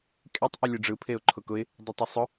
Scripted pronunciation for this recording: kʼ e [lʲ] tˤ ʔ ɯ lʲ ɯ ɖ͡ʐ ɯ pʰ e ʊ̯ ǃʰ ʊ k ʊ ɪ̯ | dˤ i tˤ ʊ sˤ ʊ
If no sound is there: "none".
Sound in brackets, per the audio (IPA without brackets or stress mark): none